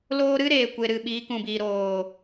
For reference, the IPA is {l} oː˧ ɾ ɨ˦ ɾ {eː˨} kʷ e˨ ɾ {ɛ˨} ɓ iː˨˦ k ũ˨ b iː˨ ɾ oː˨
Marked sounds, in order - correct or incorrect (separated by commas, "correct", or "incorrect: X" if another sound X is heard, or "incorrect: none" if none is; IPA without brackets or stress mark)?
correct, correct, incorrect: ɨ˨